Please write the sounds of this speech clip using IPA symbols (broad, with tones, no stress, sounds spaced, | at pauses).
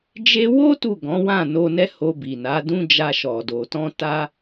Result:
d͡ʒ e˧ w o˦ t u˦˨ ɡ ɔ̃˨˦ w ã˦˨ n o˧ n ɛ˦ h o˧ b i˨ n a˨˦ d ũ˦ d͡ʒ a˧ ʃ ɔ˨ d o˨ t ɔ̃˧ t a˧